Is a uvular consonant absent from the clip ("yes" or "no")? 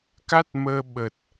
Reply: yes